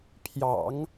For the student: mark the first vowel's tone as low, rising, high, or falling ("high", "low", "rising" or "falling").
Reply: low